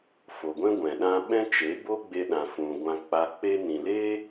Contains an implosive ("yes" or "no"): yes